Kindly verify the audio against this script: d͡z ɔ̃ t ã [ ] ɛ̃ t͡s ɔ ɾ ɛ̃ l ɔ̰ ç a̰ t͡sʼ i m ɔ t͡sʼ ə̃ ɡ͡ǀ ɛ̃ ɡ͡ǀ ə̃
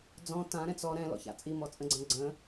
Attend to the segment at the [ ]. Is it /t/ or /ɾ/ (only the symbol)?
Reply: ɾ